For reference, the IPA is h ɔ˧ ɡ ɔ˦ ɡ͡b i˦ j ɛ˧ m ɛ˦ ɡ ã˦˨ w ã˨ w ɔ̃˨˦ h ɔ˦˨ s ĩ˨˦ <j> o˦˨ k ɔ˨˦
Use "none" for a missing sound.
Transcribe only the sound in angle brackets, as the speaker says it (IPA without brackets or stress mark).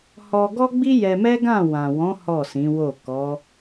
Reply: w